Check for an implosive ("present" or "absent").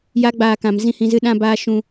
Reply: present